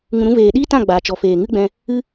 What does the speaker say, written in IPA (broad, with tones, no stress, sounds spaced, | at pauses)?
ŋ ũ˧ ɾ ũ˦ v eː˨ ɗ iː˦ t ã˦˨ ɡ͡b aː˨ t͡ʃ ɔ˨ f eː˨ ŋ ɨ˦ ɡ͡b ɛ̃˧ | ɨ˦